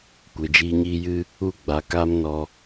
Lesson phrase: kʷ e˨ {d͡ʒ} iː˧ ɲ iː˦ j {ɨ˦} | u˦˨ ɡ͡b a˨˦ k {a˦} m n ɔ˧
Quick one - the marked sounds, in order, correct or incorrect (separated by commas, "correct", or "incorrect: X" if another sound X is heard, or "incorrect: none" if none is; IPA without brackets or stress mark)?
correct, correct, correct